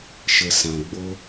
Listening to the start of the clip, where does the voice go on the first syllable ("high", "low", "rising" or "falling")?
low